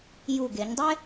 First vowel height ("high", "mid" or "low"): high